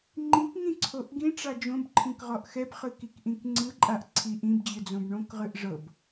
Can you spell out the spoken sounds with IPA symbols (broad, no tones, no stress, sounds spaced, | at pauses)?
ŋ͡ǃ ĩ k ŋ ĩ ǀʰ o ʔ ɡ ĩ ʈ͡ʂ a d͡ʒ õ b ǃʰ ĩ k ʁ ɔ ʔ x ɛ b χ ɯ k i k ʔ ĩ k ŋ͡ǀ ɯ ǃʼ a ʔ ǀʰ i ʔ ĩ b d͡ʑ ɯ d͡z õ b ɳ õ k ʁ ɯ ʔ ʐ ɤ b